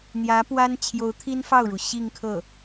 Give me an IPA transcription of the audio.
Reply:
n̪jä˧˥pwa˥n t͡ɕʰjo˧˥ʊ̯t̪ʰi˥nfɑ˥˩ʊ̯ɻu˩ ɕi˥˧ŋkʰɤ˥˩

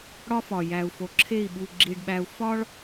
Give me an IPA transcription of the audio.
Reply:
ɽɒ˦fɒ˨ jæ˨u̯fo˨ǁʰe˦˨i̯ ɓu˨ ɡ͡ǁi˨ɖɓæ˨u̯fɒ˦ɭ

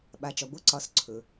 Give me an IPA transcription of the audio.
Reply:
ɓa˩˧t͡ʃɒ˩ ɡʷɤ˧˥ǀɒ˩˧s ǀʰɵ˩

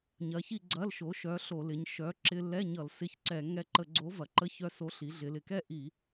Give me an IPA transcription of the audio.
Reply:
ɲɐ˨˥çi˥˧ɡ͡ǀɐ˧˥˧lʃo˨˥ ʃœ˨˥ɬo˧˩˧lɪ˩˧ɲ ʃœ˨˥ ǁɪ˧lːɛ˧˥˧ɲʌ˧˩˧l sɪ˧˥˧çǀɛ˧˩˧ ŋɛ˧ǃə˧˩˧ɡ͡ǀo˨˥ vɐ˩˧ǃə˧˥˧çœ˧so˨˥ ɬi˩˧ɮɪ˩˧lɪ˩˧kɛ˥˧ ʔi˧˩˧

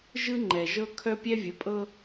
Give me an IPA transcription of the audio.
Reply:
ʒɯ˦ŋ͡ǃɛ˨ʒɤ˦ kʰœ˦pʲɛ˦vʲə˨˦pʼɤ˦

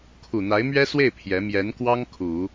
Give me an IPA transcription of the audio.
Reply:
kʰu˨˩n̪a˧˥ɪ̯mɥɛ˥swe˥˩ɪ̯ pʰjɛ˧˥ mjɛ˧˥nkwɑ˥ŋ kʰu˨˩˦

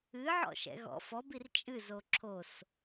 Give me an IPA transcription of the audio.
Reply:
ɨʕɔ̰ʃɛ̰ ɣɔ̰f ɔb irt͡ʃʼɨ zoǁʰos

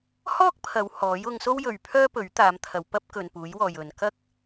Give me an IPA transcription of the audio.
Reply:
hɔː˥k̚pʰɐ˨˧w hɔː˨˥jʊ˧ŋ so˥wjɵ˨ɥpʰœː˥ pɵ˨˥ɥt̪aː˨˧mt̪ʰɐ˨˧w pɐ˥p̚kɵ˨n puː˨˥jwɔː˨j ɵ˨n kɐ˥k̚

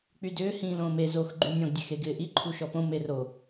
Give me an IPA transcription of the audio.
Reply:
k͡pydʏː hĩːlõːme zox ɡ͡ǃynʲɔ̃ɡ dʲexeɡɪːʔi ǃʰuʃɔpõ mero

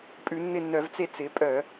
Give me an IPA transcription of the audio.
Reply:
pʼʉ˧˩˧nːɪ˦˨nːœ˧˩˧vt͡se˦˨ t͡sɪ˨˦pʼœ˧˩˧

